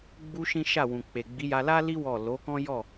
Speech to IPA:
ɡ͡b u˦ ʃ ĩ˦ ʃ a˦˨ w ũ˨ k͡p e˨ ɡ͡b i˨˦ j a˧ l a˦ l i˦ w ɔ˦˨ l o˨˦ k ɔ̃˦ j ɔ˦˨

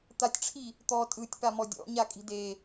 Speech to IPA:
t̪ a tʲ ʈ͡ʂʰ i | t̪ ɔ tʼ ɯ tʲ p a m ɔ dʲ ɔ̰ ɲ a kʼ i̤ d e

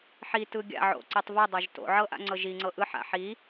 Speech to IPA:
ħ i t ɯ ɡʲ a̰ ʕ o̰ ǀ i tˤ v ɯ dˤ o ʒ t o̰ ʕ ɤ ʔ a̰ ŋ͡ǀ ɤ ʒ i ŋ͡ǀ ɤ ʔ ɯ ħ a̰ ħ i

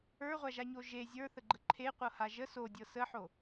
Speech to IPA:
ə˞ ʁʷ a ʒ a ɲ o ʒ e zʲ ə˞ θ ə ɡ͡ǃ ə ǃʰ e qʷ ɤ h a ʒ ə s o dʲ ɤ s ə ħ o

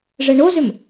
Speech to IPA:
ʐ ɛ ɳ o z ʏ m

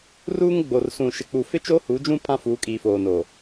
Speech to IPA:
r uː˦ ŋ ɡ͡b o˨ r s ũ˨ ʃ ɪ˨ k͡p u˨ f ɪ˦ t͡ʃ oː˦ h u˨˦ d͡ʒ ũ˦ pʰ ã˦ f uː˨˦ kʼ iː˨ f oː˨ n o˨

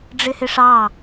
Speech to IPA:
ɖ͡ʐ ɪ h ɪ ʂ ɑ

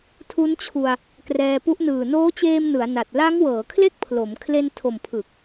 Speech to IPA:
tʰ u˦˥ n t͡ɕʰ u˧ a̯ | k r ɛː˧ p u˦˥ ʔ n ɯː˨˩ n oː˦˥ t͡ɕ eː˧ m n ɯ˩˦ a̯ n a˨˩ t̚ l a˦˥ ŋ w ɤː˩˦ kʰ l e˥˩ k̚ pʰ l o˩˦ m kʰ l e˧ n tʰ o˨˩ m pʰ ɯ˨˩ k̚

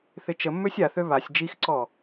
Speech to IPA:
θ ɪ t͡ʃ ə mː ø sʲ a θ ø β a sʲ d͡ʒ i x ǀ ɔ

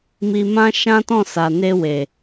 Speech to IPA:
m i˧ m ã˦ ʃ ã˦ t ɔ̃˦˨ s a˨ n e˧ w e˨

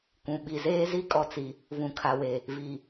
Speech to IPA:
kʷ ũ˨ ɓ i˨ z eː˦ z i˦ kʼ ɔ˨ t͡s i˨ | v ũ˨ kʰ a˨ w e˨ | v i˨

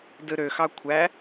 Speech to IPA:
d ɯ ɾ ø x ɑ kʷʰ æ

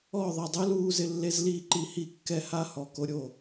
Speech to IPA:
ɔ˥˧ ðˤ ɪ˥˧ dˤ ɛ˥ l uː˥ z ɪ˥ lː e˥ z l iː˥ ǃ i˥˧ h i˥˧ kː ɛ˥ h a˥ h ɔ˥˧ k o˥ ɾʲ o˥˧

